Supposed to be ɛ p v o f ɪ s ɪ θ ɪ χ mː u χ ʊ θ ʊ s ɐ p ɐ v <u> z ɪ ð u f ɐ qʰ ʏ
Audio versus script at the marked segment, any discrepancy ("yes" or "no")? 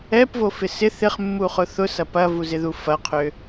no